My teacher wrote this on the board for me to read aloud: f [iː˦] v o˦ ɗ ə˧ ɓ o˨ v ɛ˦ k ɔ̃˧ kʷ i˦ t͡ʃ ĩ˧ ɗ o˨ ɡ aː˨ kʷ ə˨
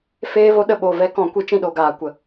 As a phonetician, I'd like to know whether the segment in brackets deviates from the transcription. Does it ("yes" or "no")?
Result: yes